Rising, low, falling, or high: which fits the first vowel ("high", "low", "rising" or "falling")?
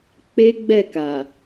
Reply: high